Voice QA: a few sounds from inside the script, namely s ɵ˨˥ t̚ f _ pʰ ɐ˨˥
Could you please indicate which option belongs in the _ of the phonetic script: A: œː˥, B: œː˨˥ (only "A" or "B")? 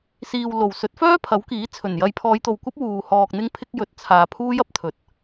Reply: A